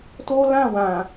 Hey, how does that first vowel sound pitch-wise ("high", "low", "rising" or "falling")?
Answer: high